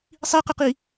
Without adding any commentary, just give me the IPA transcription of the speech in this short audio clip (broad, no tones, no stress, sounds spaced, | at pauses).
sˤ i q ɪ q i